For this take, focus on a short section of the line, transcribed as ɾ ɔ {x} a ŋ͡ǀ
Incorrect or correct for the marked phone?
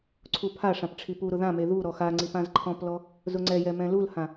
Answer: correct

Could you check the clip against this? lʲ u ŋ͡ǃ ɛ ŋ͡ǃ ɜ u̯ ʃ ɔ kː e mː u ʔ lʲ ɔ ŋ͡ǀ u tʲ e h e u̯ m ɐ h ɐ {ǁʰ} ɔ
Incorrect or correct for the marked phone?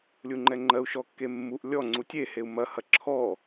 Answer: correct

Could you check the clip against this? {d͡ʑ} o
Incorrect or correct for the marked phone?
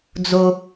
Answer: incorrect: d͡z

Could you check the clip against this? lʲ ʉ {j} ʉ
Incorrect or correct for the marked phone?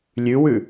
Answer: incorrect: w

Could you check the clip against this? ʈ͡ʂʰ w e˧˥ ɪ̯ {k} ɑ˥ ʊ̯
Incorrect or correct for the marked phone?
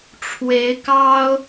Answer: correct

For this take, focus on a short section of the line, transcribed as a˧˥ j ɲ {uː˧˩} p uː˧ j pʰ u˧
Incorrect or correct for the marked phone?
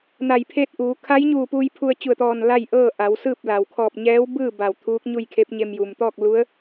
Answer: correct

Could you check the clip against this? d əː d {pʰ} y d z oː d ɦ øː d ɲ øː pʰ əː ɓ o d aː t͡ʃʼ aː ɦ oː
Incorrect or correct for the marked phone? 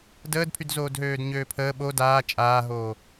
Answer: correct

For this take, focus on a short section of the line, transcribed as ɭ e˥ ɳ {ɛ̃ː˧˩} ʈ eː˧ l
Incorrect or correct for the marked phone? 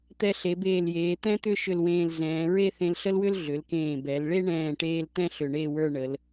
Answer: correct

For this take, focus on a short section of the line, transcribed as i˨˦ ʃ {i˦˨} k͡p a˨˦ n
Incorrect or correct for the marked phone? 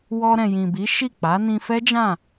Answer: correct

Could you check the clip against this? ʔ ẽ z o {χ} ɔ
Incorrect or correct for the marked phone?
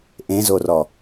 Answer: incorrect: r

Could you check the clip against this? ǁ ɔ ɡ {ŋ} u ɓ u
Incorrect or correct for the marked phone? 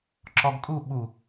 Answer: incorrect: kʼ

